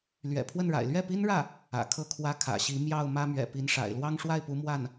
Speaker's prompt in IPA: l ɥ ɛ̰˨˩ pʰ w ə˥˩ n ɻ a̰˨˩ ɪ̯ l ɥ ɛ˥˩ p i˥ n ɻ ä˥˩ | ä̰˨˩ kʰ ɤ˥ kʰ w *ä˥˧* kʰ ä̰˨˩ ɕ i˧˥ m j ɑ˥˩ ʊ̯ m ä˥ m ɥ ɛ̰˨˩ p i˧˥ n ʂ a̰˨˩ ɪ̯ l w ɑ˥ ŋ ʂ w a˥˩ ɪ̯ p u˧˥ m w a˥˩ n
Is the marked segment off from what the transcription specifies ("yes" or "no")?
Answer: yes